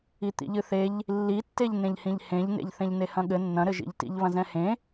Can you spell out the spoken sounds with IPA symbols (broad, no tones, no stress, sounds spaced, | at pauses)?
i t̪ ḭ ʎ ɨ θ e ʎ | lː i tː e ʎ n ẽ ʎ h ĩ ʎ h ẽ ʎ n ḛ ʎ θ ẽ ʎ n e h ɐ̃ ɠ ɘ nː ɐ̃ ɾ ɘ ʒ ḭ ʎ t ḭ ʎ β ɐ̃ z ɛ̃ h ẽ